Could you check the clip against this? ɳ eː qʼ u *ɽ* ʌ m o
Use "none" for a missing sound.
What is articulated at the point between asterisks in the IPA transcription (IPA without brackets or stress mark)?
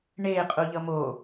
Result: ʎ